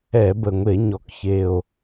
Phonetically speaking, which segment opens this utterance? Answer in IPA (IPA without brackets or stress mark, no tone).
ɛ